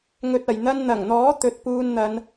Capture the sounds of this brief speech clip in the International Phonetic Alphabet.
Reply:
ŋ ɵ˧ t̚ ɐ˨ j n̪ ɐ˥ n n̪ ɐ˨˩ ŋ n̪ ɔː˨˥ t̪ ɵ˨˥ t̚ p uː˧ n n̪ ɐ˨˧ n

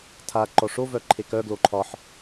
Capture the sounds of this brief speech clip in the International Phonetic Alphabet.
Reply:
tʰ a ǃ ɔ ʂ o v œ ǃʰ e k œ ɡ l o ǃʰ ɒ ħ

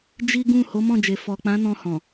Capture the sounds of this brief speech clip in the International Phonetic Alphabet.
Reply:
d͡ʒ i˦ ɡ ũ˦˨ h o˨˦ m ɔ̃˦˨ d͡ʒ e˨ f ɔ˨ k͡p ã˨˦ n ɔ̃˧ h ɔ̃˨

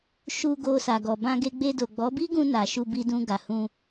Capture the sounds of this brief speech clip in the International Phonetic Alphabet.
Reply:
ʃ u˧ ɡ o˧ s a˨ ɡ ɔ˨ b ã˧ ɡ e˧ ɡ͡b e˧ d o˨ ɡ͡b ɔ˨˦ b i˦ ɡ ũ˧ n a˨ ʃ u˧ b i˧ d ũ˧ ɡ a˨ h ũ˧

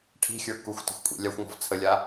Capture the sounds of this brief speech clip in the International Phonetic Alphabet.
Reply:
ʈʰ i̤ xʲ ə˞ k u xʷ t ə̤ xʷ kʷʼ ḭ lʲ a xʷ ŋ ɔ̤ v t͡sʰ ə lʲ a

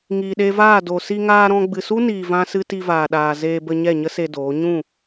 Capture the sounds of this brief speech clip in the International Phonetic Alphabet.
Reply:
ŋ iː˨ ɗ e˧ v aː˦˨ d o˨ s i˧ ŋ aː˧ ɾ ɔ̃˧ ɡ͡b ɨ˨ s u˦ n iː˨ v ã˦ s ɨ˦ t i˧ v aː˨ ɗ aː˨ z eː˧ b ə˧ ɲ ɛ˦˨ ɲ ə˦ s e˧ d oː˨˦ ɲ ũ˦˨

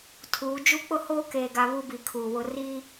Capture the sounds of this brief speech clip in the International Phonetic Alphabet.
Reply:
tʰ uː˨˦ d͡ʒ u˦ k͡p ʊ˦ h oː˦ k eː˨ ɡ a˨ β u˦ b i˨ kʰ uː˨ w ʊ˦ r i˦

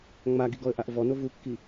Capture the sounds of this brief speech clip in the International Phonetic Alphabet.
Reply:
ŋ͡m a ɡ i ɡ ɔ ə̯ ʔ a ʔ v ɔ n o v u kː i

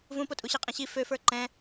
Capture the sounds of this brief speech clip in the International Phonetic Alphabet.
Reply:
v ũ p o tʼ u ɕ i qʼ ɛ̃ ɕ i f ø f ə˞ ǃ ɛ̃

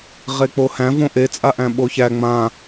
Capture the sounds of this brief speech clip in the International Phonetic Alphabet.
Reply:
ʁ e k͡p o h æ̃ v õ ʔ e t͡sʼ a ʔ æ̃ ɓ o ç æ ŋ͡m ã

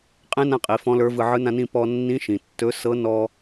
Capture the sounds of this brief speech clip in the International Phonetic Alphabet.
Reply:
qʼ ẽ˧˥ n ã˧ qʼ i˩˧ f ɔ̃˧˥ l ə˞˧˥ v ɯ˧ ʕ ɯ˧˥ n ã˧ n ĩ˧ p ɔ˧ nː ĩ˧˥ ʃ ĩ˩ tː ɵ˧˥ s ɤ˧˥ n ɔ˧

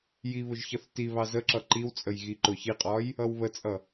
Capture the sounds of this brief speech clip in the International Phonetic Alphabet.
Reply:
j i β ʊ ʒ ç ʌ θ t i β ɑ z ə ǁ ʌ ǃ i w t͡sʼ ə j ɣ i ǃ ʊ ç i qʼ ɒ j | ʌ w β ə t͡sʼ ʌ

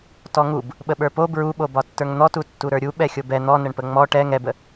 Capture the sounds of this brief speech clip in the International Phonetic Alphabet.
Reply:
t ɔ ŋ u b | ɓ ə ɓ ə˞ p o b ɹ u ɓ o b ɒ tː ə˞ ŋ n̪ ɔ t u tː u ɾ ə˞ ɾʲ u ɓ ɛ xʲ o b ɛ n̪ ɔ n ə ɳ p ə ŋ͡m ɔ ʈ ɛ ŋ ɛ b ə

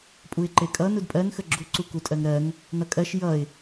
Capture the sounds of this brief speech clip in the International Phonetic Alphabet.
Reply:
pʼ u ɪ̯ ǃ e kʼ ʌ n u d pʼ ɜ n x ə ɡ͡ǁ u ǀ u k u tʼ ɜ ŋ ɾ ɜ ŋ | n ʌ kʼ ɜ ʃ j ʌ ɪ̯

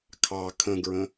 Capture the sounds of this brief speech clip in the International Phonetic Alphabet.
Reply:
kʰ ɑ kʰ ə̃ ɡ ɹ ə̃

